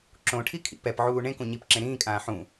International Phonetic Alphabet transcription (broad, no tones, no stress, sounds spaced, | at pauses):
ǁ õ ʈʰ i kʰ ḭ p ɛ p ʕ uː ɳ ẽ k ũ ɲ i p ǁ ẽ ɾ ĩː kʼ ãː ħ ũ